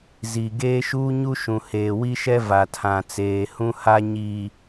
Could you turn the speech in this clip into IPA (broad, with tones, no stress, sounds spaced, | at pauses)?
z i˨ ɡ eː˦ ʃ uː˦ ɲ u˦ ʃ ũ˨ h eː˨ w i˦ ʃ ɛ˦ v a˨ tʰ ã˨ t͡s eː˨ h ũ˦ h a˦ ɲ i˨